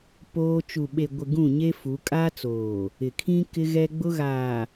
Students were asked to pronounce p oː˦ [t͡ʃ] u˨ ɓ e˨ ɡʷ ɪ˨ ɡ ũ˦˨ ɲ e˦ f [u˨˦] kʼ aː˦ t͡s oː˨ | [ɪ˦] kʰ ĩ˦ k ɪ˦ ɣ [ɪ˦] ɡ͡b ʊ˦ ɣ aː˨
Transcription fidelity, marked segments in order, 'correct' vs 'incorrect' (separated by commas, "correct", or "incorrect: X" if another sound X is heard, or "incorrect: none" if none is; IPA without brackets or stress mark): correct, correct, incorrect: ɪ˨, incorrect: ɛ˦